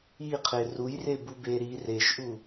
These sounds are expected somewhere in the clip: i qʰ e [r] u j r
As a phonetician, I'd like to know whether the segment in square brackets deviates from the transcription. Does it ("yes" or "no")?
no